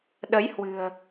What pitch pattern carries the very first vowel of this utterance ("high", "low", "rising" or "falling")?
rising